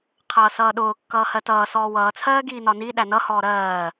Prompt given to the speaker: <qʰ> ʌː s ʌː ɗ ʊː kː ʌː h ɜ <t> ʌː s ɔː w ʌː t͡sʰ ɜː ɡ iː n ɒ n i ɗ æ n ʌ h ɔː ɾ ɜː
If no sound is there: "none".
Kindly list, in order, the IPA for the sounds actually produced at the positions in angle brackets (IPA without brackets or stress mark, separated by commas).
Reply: qʰ, t